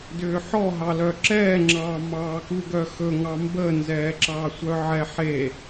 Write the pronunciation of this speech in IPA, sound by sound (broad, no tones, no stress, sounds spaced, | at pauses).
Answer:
d ʏː ħ ɔ ɦ ɑ l œ ǁ ɛː ŋ͡ǁ ɑː m ɑː k u ɡ œ x ɵ ŋ ɑ m b ə n z ɛː ǁ ɑ sʷ œ ʕ ɛ ħ e